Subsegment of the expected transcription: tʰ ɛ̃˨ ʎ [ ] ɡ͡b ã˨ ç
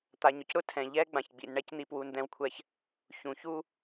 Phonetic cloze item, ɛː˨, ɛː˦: ɛː˦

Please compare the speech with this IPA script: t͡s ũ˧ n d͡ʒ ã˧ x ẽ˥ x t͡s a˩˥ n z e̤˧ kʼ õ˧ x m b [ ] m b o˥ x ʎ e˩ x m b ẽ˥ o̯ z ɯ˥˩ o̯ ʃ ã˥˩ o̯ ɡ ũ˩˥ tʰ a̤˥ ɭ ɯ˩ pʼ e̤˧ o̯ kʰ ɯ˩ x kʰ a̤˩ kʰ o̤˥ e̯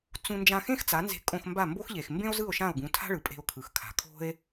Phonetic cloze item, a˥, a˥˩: a˥˩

